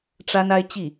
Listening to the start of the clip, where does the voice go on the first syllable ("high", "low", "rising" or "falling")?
high